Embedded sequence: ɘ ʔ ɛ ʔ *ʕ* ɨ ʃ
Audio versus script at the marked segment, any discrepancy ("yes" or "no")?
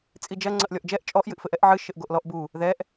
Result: no